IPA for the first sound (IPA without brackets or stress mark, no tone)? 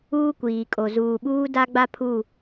uː